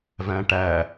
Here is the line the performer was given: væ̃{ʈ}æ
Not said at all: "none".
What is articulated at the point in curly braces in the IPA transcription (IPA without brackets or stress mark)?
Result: ʈ